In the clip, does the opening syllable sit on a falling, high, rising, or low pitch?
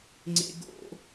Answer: high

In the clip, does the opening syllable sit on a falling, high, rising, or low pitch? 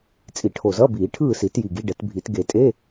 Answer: low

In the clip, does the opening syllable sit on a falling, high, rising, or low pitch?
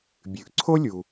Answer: low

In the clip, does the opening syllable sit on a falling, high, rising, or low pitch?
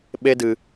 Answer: high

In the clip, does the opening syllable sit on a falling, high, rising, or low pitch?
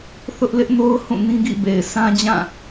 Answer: high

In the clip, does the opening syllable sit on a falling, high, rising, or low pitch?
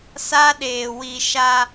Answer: high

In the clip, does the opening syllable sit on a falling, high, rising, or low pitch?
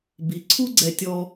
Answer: rising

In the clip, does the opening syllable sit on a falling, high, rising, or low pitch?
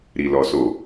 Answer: low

